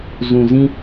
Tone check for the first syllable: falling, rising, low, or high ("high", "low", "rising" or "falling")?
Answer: low